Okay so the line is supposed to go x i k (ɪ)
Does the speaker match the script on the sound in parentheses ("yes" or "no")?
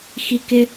yes